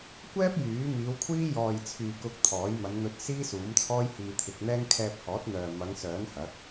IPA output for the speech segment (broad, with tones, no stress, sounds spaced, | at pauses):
kʷ ɛː˥ p̚ j yː˨˥ m iː˨˧ w kʷʰ iː˥ j ɔː˨ j t͡sʰ yː˨ k ʊ˧ k̚ t̪ʰ ɔː˨˥ j m ɐ˨˧ n n̪ ɵ˧ t̚ s iː˥ s uː˨˥ m t͡sʰ ɔː˥ j h iː˧ t̪ʰ ɪ˧ k̚ n̪ ɛː˥ ŋ kʰ ɛː˧ p̚ h ɔː˨˥ t̚ n̪ œː˨ m ɐ˨˧ ŋ s œː˨˥ n h ɐ˨˥ k̚